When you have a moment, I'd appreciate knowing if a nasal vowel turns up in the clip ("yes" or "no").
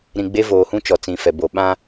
yes